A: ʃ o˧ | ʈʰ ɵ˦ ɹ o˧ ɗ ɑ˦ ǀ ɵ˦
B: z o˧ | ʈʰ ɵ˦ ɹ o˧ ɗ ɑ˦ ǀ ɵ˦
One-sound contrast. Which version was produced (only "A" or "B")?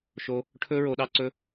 A